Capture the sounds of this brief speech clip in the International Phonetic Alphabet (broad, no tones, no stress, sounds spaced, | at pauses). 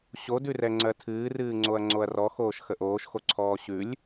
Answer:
ɕ o d ʉ r ɛ ŋ͡ǀ ɜ tʰ ɨː r ɨː ŋ͡ǀ o ɐ̯ ŋ͡ǀ o ɐ̯ r ɔ x oː ʃ x ə ʔ oː ʃ x o ǀʰ ɔː ɕ ʉ lʲ